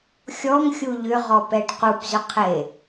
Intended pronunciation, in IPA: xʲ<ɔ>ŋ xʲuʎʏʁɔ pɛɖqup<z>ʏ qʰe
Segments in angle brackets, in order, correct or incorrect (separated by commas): correct, correct